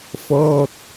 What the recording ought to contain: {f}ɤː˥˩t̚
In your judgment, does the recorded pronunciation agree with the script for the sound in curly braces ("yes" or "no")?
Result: yes